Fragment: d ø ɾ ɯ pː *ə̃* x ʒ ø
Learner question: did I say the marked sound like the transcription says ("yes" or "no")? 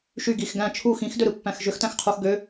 no